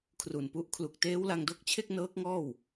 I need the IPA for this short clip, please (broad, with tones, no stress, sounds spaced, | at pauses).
kʰ r u˨˩ n p u˦˥ ʔ kʰ l u˨˩ k̚ t eː˦˥ w l a˧ ŋ d o˦˥ k̚ t͡ɕʰ e˥˩ k̚ n ɤː˦˥ k̚ ŋ ɔː˥˩ w